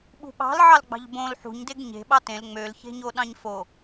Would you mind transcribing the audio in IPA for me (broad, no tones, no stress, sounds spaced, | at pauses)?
ɓ ṳ ɓ ɑ̤ l ʕ ɑ l ɡ͡b ɑ̤ ʎ b õ l ħ ṳ ɲ d e ɡ ɲ e̤ ɓ ɑ t ẽ l ŋ͡m ø l ç e̤ ɲ o ɗ ɑ̃ ɲ f o